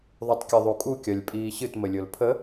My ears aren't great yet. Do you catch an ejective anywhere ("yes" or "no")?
yes